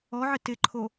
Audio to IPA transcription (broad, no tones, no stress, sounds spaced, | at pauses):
ɔ ʕ ɪ t ɪ ǃʰ o